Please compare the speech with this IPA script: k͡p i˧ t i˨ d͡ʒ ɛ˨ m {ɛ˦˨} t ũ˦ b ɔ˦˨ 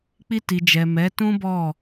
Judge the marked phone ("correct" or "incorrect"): incorrect